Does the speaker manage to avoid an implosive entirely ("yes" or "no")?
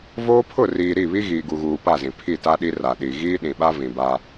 no